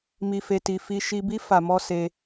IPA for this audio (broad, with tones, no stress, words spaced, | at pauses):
mi˨fe˨ti˨ fi˧ ʃi˧bi˦ fa˧mɔ˦ se˧